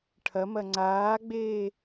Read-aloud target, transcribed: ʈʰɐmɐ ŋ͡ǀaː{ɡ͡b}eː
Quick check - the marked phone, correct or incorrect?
correct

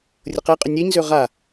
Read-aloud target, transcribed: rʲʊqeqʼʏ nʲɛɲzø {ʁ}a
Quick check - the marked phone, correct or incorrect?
correct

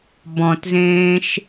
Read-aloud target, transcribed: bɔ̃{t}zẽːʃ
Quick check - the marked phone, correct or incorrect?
correct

